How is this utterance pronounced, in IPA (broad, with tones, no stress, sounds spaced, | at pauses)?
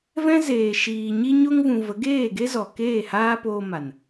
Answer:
v ɛ̃˦ z eː˨ ʃ iː˨ ɲ i˧ ɲ o˧ ŋ v ũ˨ v ə˨˦ ɡ eː˦˨ ɡ e˦ z ɔ˨ k eː˦˨ h aː˦ p oː˧ m a˨ n